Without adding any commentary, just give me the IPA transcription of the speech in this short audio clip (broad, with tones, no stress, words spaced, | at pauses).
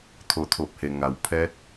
t̪ʰoː˧˩t̪ʰo˧˩p̚he˩ŋa˩w pʰɛː˧˥t̚